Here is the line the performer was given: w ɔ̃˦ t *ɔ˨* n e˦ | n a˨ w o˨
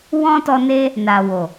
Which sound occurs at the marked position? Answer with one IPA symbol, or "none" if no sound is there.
ɔ˧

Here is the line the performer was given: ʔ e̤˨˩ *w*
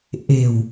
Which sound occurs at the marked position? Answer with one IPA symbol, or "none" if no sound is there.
w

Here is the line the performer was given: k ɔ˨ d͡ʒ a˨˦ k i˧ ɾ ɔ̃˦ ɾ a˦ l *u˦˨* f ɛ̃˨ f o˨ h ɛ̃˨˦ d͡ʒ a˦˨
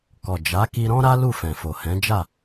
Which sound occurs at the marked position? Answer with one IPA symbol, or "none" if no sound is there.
u˦˨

